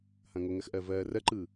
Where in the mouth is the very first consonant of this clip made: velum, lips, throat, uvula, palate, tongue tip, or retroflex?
throat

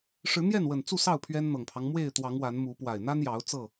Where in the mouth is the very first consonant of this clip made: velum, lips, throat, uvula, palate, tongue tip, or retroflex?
retroflex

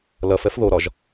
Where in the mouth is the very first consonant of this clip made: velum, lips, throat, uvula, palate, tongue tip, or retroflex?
tongue tip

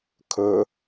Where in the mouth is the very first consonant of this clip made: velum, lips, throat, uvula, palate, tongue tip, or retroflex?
velum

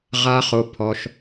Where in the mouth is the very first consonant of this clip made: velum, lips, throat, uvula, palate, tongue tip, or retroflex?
uvula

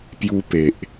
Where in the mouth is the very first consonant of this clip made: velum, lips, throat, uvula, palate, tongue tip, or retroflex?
lips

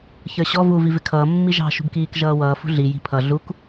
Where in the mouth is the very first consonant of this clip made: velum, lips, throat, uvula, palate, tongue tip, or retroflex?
palate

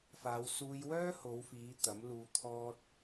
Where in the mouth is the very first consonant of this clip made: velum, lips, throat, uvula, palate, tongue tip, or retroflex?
lips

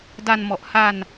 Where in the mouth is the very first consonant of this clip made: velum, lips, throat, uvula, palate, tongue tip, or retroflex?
tongue tip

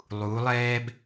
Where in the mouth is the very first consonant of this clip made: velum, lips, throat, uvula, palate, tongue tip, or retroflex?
tongue tip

